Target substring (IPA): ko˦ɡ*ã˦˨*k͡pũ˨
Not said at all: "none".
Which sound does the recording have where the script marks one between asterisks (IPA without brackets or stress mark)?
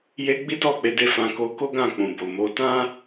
ã˦˨